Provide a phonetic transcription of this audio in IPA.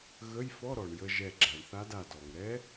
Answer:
ɣ ə˧˥˧ j f ɔ˧˥˧ ɾ ɔ˩ ɳ j ə˧ ʒ ɛ˧˩ ɡ͡ǁ a˩ ɳ θ a˧˥ d a˧˩ d ɔ˩ ŋ ɾ ɛ˧˥

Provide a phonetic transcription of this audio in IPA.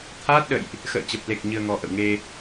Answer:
t̪ʰ aː˦˥ t̚ ɗ ə̰˧˨ j ʔ | x ə̰ː˧˨ t͡ɕ ə˨˩ p̚ l e˨˩ k̚ ɲ ɨ˧ ə̯ ŋ ɔ˧ ʔ ə̰˧˨ w ŋ e˧

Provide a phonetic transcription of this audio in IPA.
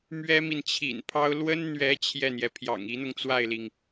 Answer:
m ɥ ɛ˥ m i˨ n t͡ɕʰ ḭ˨˩ n pʰ ɑ˥ ʊ̯ l w ə˥ n n̪ ɥ ɛ˧˥ t͡ɕʰ j ɛ˥˩ n̪ j ɛ˩ pʰ j ɑ̰˨˩ ŋ i˧˥ n̪ ʊ˧ ŋ t͡s w a˥˩ ɪ̯ l i˩ ŋ

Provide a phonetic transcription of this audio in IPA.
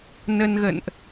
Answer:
n ə˧ n ɣ ə̰˧˨ n ʔ

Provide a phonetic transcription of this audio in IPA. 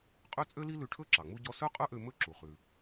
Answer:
qʼ ø˥ t͡sʼ ø˥ l i˥ l ʉ˧ ʈʰ ɵ˥ ǁ ɑ˩ ŋ͡m u˧ ɟ ɔ˧ s œ˥ qʼ œ˥ ʔ ø˧ m ɵ˥ ǁ u˩ χ ʉ˩

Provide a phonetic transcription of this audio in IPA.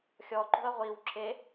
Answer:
xʲ ɔ ǃ ṳ ɐ̯ ʁʷ i w ǁ e

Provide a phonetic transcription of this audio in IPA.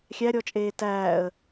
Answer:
xʲ æ ɾʲ ɔ t͡ʃʼ eː t æː ə̯

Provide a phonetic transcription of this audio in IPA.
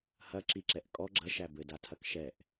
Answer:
h ɐ ǁ i ǁ ɛ ʔ kʼ ɔ ɡ͡ǁ ɐ ʃ æ b ɘ d a tʰ ɐ k ʃ ɛ ʔ

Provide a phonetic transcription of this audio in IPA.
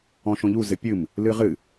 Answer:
ɔ̃ ʃ õ ʎ u z ɘ pʲ ɨ m | l ɨ ʁ ɨ

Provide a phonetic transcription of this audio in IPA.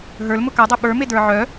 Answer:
ɦ ə˞ l m ʊ k a dˤ e ɓ ə˞ m e d ə˞ ʕ œ

